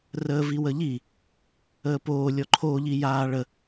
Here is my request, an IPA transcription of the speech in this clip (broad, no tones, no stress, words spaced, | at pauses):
rəːviwəʎi | əːpoː lʲɔǃʰo ʎijaːɭə